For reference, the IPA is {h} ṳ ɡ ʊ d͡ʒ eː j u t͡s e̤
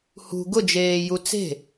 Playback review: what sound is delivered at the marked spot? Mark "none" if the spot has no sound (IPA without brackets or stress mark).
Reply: h